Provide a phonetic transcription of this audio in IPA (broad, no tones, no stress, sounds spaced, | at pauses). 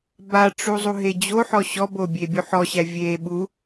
b a ʈ͡ʂ u zˤ u ɦ e d͡ʑ o ħ ɔ ɕ ɔ b o bʲ e bʲ u ħ ɔ ɕ æ vʲ e ɓ u